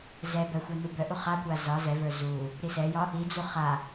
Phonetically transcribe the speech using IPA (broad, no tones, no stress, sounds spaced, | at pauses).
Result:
z ɛ b œ xʷ œ n u b œ ʔ u χ a kʷ a z ɒ z ɛ v ə˞ z u | ɾ i s ɛ j ɒ | i d͡z u χ a